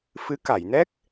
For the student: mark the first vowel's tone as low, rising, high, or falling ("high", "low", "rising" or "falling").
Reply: rising